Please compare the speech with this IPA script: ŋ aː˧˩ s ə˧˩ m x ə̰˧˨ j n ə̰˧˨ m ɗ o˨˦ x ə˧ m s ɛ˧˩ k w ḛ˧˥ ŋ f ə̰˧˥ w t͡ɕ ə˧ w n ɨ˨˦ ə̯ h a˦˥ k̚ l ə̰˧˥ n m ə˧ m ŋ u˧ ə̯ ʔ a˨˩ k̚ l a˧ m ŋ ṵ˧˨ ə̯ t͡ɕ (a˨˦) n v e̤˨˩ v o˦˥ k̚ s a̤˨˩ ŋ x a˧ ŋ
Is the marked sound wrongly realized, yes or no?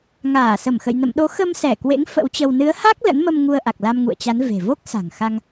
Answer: no